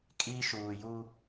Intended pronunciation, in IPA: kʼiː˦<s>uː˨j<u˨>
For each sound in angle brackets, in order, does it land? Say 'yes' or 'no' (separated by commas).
no, no